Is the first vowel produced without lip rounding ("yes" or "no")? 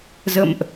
yes